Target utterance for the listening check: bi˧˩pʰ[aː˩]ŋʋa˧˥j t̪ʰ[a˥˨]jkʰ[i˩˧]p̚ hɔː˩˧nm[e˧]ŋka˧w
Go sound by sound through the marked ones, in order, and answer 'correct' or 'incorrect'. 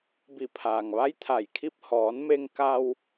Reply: correct, incorrect: a˧˩, incorrect: i˥˨, correct

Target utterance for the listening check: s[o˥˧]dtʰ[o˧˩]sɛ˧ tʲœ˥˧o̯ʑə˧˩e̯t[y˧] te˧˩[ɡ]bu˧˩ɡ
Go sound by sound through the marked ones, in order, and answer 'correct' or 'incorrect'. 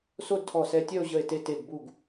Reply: correct, incorrect: ɔ˧˩, incorrect: e˧, correct

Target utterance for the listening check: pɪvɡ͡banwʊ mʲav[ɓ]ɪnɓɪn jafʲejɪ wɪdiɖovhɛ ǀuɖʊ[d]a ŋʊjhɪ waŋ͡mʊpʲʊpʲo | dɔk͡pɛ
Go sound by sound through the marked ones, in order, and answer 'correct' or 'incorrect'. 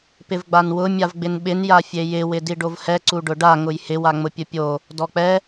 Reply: incorrect: ɡ͡b, incorrect: ɖ

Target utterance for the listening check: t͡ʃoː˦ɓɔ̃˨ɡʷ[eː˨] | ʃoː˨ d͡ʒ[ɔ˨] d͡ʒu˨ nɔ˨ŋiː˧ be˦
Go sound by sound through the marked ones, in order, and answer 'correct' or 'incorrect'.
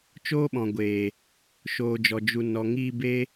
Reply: correct, correct

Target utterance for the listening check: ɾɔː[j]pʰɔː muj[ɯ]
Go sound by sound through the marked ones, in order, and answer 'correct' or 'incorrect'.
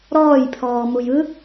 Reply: correct, correct

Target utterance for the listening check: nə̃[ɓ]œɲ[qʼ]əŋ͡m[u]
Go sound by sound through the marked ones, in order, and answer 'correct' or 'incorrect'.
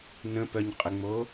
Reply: incorrect: p, correct, incorrect: o

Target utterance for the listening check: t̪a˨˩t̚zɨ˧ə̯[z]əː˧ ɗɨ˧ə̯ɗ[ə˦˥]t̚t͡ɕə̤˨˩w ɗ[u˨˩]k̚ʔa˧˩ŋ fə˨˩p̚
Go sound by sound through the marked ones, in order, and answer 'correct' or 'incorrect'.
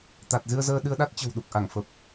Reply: correct, incorrect: a˦˥, correct

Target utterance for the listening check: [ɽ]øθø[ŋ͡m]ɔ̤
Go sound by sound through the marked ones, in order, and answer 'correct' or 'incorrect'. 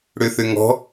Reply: correct, incorrect: ŋ

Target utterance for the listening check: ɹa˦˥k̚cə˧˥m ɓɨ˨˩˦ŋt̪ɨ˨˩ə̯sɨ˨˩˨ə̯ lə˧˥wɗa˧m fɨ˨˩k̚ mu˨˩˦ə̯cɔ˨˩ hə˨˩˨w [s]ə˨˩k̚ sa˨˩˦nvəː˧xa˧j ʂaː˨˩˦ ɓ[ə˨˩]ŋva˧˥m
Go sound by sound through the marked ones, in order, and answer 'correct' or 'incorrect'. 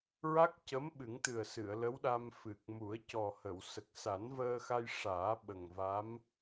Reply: correct, correct

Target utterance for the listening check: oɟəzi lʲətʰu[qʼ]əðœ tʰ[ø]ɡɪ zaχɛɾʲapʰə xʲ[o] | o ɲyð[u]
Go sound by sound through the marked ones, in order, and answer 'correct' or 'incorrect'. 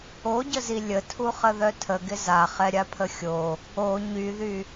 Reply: incorrect: χ, incorrect: ə, correct, incorrect: y

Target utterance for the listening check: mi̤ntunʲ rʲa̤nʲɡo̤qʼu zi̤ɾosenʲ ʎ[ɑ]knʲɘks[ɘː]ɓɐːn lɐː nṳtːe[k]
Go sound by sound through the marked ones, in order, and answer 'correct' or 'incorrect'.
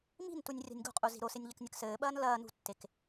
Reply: incorrect: ɐ, correct, correct

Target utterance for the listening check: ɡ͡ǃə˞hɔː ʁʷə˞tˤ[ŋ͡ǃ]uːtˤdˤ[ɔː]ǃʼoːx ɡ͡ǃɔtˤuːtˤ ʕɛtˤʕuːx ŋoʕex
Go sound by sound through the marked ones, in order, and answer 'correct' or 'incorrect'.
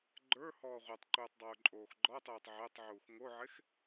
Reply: incorrect: ǃ, incorrect: oː

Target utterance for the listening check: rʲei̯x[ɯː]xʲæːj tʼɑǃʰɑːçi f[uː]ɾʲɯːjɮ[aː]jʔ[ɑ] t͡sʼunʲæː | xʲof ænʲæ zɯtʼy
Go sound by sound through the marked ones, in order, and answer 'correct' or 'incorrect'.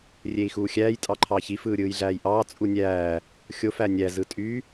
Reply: incorrect: uː, incorrect: ɯː, incorrect: æː, incorrect: ɑː

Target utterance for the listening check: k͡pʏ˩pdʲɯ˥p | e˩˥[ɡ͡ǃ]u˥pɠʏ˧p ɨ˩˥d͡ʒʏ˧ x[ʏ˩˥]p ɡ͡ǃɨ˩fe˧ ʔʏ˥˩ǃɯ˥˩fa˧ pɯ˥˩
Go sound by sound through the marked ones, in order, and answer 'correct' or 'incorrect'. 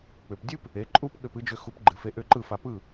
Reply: incorrect: ǃʼ, incorrect: u˩˥

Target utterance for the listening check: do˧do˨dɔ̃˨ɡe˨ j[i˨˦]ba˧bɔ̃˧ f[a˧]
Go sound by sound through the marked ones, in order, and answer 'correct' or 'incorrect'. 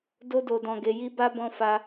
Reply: incorrect: i˧, correct

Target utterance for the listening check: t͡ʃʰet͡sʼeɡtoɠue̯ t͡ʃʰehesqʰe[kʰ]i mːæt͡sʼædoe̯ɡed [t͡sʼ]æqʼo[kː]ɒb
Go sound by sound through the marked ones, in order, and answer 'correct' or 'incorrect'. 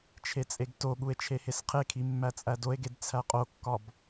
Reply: correct, incorrect: t͡sʰ, correct

